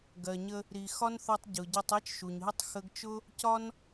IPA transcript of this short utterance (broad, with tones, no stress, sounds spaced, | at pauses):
ɡ ɜ˩ ɲ ə˧ | ɾ i˩ x ɒ˥ n θ ɔ˧ tˤ ɟ ʊ˩ ɟ ʌ˧ tˤ ɜ˥ t͡ʃ ʃ u˩ ɲ ɦ ə˥ tˤ x ə˧ ɡ t͡ʃ ʊ˥ | c ɒ˥ n